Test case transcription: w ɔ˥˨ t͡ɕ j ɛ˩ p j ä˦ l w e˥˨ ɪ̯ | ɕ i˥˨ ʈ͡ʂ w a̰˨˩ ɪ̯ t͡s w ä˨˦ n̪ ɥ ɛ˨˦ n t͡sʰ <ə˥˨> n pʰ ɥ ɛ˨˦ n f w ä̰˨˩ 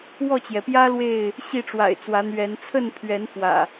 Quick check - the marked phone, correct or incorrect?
correct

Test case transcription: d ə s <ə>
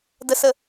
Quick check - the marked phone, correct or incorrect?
correct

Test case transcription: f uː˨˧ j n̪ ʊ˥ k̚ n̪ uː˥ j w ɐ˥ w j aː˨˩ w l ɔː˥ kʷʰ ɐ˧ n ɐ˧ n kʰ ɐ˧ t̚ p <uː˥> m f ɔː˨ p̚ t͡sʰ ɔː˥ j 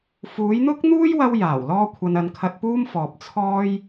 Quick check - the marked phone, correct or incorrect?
correct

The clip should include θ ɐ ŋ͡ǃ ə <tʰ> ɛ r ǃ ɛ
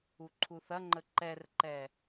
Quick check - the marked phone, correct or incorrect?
incorrect: ǃ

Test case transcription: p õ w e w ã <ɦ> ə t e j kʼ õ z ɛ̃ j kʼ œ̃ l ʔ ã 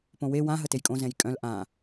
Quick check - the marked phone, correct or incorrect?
correct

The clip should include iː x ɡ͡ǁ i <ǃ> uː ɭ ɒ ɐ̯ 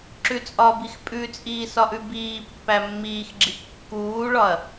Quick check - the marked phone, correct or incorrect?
incorrect: kː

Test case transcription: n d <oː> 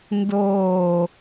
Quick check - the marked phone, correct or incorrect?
correct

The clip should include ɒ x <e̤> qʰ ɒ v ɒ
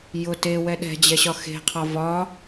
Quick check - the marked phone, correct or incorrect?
correct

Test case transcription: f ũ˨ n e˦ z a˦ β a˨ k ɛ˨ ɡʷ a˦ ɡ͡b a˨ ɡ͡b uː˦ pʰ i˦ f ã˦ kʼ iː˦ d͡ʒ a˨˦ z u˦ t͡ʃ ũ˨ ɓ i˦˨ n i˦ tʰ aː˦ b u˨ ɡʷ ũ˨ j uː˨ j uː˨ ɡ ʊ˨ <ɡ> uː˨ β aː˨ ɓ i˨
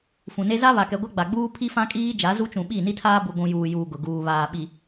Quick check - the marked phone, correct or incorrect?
correct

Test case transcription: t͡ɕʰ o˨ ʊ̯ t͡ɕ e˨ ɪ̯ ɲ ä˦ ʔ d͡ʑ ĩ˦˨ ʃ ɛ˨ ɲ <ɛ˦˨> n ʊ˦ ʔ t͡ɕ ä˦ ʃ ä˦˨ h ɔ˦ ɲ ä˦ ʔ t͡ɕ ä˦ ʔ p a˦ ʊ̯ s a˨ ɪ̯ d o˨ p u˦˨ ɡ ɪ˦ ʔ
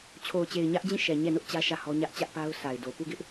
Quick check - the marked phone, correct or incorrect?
correct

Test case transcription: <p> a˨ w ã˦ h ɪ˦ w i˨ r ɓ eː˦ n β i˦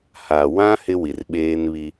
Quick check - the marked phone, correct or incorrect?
incorrect: h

